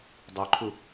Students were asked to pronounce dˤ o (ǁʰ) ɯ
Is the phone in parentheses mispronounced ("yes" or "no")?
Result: yes